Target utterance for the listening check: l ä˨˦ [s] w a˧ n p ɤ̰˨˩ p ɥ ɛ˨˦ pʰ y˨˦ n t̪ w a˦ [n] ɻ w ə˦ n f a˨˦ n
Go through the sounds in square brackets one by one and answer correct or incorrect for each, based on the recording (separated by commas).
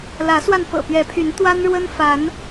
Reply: correct, correct